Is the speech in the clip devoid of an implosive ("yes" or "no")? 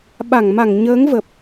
no